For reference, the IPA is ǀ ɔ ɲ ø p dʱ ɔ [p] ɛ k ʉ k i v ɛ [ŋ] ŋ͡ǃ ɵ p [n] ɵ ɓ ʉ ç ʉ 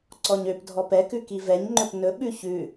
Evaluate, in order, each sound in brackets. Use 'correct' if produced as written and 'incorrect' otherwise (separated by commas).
correct, incorrect, correct